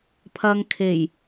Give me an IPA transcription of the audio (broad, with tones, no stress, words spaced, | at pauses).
pʰɐ˧ŋkʰe˨˩j